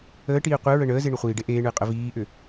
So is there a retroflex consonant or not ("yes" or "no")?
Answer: yes